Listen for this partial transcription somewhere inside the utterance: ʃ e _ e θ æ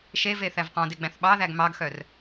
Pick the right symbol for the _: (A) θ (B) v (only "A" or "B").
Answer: B